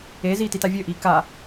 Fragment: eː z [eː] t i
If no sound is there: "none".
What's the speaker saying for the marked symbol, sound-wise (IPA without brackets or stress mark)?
iː